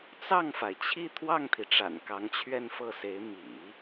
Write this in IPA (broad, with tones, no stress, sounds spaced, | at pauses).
t͡s ɑ˥˩ ŋ f a˩ ɪ̯ t͡ɕʰ i˥˧ t̪ʰ w ɑ˥˩ ŋ t̪ʰ i˩ ʈ͡ʂ a̰˨˩ n k ɑ˧˥ ŋ t͡ɕʰ ɥ ɛ˥˧ n f ɤ˥˩ s e˧˥ ɪ̯ m ḭ˨˩˦